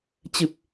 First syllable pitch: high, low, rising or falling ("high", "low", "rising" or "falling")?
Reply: low